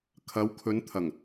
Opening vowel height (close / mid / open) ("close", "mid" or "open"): open